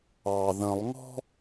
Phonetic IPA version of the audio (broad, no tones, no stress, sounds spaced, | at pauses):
ɑ ð ə̃ lˠ ŋ ɔ̤